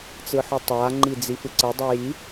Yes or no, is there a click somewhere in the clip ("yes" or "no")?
yes